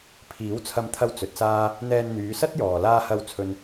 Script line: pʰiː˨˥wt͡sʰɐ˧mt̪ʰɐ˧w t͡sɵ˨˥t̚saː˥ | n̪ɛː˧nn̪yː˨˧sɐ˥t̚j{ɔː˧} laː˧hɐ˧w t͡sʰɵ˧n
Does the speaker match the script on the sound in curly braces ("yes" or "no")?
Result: no